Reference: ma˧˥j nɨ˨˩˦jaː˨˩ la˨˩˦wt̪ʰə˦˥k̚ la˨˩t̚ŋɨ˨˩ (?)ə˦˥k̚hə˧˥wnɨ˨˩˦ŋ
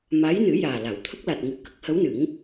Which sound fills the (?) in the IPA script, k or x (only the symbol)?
k